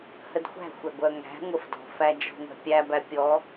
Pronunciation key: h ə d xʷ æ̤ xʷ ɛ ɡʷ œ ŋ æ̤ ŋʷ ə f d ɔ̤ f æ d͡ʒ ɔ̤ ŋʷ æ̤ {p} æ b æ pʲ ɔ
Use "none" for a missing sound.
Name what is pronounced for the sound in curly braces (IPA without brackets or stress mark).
pʲ